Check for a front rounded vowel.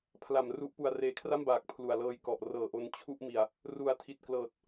absent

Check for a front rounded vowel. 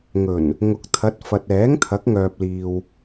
present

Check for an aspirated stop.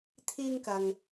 present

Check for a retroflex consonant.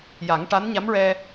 present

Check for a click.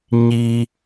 absent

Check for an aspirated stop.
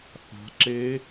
absent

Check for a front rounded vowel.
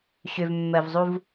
present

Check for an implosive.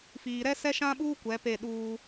present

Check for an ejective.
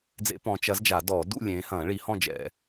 absent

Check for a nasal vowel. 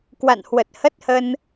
absent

